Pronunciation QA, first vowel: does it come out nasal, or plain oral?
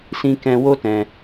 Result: nasal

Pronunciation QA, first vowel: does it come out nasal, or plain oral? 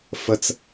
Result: oral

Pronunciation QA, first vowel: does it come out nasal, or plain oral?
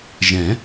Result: nasal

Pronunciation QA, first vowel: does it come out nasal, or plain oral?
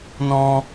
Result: nasal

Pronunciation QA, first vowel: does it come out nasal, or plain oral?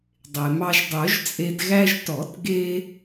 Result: oral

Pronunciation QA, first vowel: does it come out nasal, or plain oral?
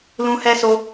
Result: nasal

